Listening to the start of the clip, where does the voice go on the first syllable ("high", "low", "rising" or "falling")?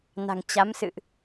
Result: low